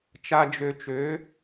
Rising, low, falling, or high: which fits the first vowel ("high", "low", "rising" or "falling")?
low